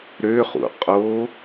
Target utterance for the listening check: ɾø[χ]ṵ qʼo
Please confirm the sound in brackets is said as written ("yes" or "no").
yes